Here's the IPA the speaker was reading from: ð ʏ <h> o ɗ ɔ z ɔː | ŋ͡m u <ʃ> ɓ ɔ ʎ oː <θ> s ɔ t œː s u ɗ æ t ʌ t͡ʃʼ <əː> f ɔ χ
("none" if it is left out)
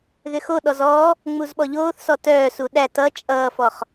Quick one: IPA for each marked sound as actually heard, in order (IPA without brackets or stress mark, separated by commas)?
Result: x, z, θ, ʌː